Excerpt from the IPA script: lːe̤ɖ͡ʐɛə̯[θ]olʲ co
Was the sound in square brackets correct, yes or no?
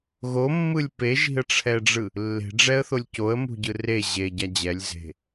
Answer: yes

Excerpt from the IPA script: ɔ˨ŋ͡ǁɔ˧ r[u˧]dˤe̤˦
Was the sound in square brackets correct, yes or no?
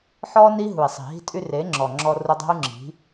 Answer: yes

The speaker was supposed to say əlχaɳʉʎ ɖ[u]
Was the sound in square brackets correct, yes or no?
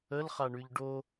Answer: no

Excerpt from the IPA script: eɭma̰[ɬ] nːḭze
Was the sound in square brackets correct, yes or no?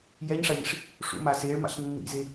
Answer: yes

